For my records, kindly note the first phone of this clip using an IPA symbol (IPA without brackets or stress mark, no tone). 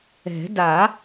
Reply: ɛ̤